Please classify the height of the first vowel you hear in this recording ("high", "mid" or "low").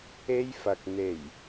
mid